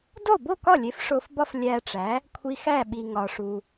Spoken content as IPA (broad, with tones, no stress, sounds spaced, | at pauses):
d o˥˩ b o˥˩ k ɒ˥˩ lʲ e˩˥ f ʂ o˧ f b ɒ˥ f lʲ æ˧ ʈ͡ʂ æ˩˥ | kʷʰ i˧ x æ˥˩ ɓ i˩ ŋ ɒ˩ ʂ u˩